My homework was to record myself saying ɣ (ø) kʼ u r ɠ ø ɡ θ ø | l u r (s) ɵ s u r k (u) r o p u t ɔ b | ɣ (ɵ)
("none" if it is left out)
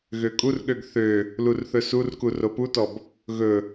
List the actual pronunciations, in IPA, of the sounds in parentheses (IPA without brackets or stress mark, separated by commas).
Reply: ø, θ, u, ɵ